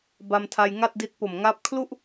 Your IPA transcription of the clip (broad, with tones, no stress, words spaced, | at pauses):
ba˧mtʰa˧jŋa˥˩t̚di˦˥t̚ po˨˩mŋa˦˥p̚ kʰlu˥˩ʔ